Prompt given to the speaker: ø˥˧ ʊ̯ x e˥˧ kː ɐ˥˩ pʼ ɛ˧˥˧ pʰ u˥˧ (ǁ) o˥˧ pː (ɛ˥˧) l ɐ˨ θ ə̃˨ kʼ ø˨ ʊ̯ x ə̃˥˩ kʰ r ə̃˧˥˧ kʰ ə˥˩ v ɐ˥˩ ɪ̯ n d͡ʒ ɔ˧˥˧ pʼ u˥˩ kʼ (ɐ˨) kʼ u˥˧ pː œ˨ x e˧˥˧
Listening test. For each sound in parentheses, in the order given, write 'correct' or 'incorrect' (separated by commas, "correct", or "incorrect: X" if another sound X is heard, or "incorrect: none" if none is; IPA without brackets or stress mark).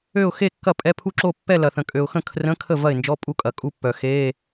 correct, correct, correct